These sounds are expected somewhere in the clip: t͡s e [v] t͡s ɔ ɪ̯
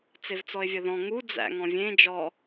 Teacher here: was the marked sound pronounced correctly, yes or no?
yes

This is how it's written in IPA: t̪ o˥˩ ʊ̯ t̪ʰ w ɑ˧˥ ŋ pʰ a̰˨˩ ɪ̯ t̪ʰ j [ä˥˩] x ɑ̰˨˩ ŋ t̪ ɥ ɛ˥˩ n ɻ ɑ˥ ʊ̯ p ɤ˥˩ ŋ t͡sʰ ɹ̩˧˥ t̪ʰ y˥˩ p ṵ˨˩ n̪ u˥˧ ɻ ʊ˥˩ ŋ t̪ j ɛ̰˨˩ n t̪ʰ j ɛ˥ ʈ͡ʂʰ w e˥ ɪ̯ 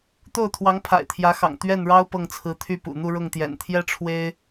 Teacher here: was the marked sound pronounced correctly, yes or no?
no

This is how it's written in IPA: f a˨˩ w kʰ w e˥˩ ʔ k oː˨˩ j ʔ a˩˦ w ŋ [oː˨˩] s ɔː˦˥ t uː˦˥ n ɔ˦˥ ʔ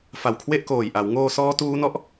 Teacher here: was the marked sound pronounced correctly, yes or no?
no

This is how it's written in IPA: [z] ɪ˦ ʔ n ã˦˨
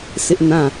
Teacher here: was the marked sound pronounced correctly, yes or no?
no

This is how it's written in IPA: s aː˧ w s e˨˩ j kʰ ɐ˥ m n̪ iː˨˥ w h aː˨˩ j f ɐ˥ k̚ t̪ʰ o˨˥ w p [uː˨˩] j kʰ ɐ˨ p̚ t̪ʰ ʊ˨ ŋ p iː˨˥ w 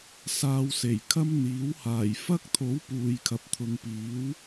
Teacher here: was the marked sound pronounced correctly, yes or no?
no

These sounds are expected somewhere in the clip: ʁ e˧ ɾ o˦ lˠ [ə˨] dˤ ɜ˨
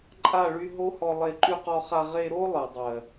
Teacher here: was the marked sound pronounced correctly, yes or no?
no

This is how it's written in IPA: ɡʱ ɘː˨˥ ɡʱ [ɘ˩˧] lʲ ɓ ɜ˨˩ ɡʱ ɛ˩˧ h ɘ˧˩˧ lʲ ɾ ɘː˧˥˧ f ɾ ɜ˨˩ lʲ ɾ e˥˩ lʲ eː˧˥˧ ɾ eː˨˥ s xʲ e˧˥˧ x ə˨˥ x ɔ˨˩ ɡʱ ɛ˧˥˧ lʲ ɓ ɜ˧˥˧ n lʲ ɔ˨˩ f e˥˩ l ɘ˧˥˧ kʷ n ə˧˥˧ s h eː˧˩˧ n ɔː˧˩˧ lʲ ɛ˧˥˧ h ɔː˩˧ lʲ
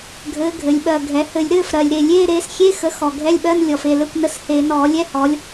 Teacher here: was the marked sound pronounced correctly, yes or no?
yes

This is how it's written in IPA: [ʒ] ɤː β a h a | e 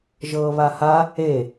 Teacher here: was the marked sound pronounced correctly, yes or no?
yes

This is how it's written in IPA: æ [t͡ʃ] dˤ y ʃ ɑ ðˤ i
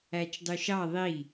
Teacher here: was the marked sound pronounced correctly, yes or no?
yes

